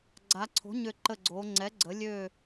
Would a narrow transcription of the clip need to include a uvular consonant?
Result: no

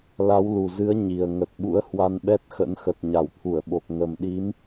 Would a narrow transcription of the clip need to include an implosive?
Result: yes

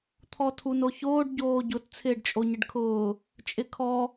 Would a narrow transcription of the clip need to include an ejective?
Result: yes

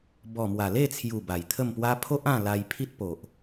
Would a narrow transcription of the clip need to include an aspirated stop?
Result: yes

